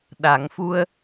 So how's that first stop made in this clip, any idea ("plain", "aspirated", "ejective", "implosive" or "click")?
implosive